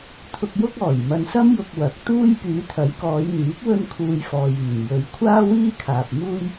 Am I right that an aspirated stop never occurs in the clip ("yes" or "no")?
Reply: no